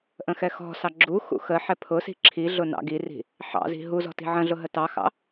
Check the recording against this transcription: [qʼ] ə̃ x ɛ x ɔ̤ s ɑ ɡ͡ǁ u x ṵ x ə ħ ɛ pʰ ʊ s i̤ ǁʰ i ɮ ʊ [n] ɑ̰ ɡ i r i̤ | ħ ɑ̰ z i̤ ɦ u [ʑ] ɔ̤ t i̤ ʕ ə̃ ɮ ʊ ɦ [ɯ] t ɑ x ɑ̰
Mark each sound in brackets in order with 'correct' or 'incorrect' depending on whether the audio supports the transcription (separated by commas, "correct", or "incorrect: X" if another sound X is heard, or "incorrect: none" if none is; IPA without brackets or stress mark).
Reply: incorrect: ʔ, correct, incorrect: z, incorrect: ə